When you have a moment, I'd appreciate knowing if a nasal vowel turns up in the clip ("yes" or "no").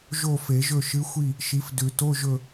no